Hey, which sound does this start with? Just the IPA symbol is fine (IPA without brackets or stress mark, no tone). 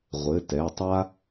ʁʷ